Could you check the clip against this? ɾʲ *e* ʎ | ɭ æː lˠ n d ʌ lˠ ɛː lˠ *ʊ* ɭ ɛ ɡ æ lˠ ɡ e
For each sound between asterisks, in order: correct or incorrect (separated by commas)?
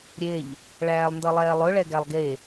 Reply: correct, correct